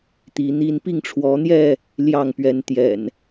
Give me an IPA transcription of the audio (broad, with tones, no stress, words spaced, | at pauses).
t̪i˨˦n̪i˦n pi˥˨ŋʈ͡ʂʰwɔ˨˦n̪jɛ˥˨ | ljɑ˥˨ŋ pɥɛ˨˦n t̪jɛ̰˨˩n